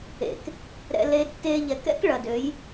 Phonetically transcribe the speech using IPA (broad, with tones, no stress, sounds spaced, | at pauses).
ḛ˨ k | ɾ ɛ̰˧ l e˧ d t e˧ ʎ ɛ˨ k ɛ̰˦ k ɭ ɐ˨ d ø˨˦ j